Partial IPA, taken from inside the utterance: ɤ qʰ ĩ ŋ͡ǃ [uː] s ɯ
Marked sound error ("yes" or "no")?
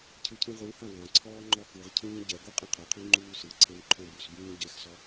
no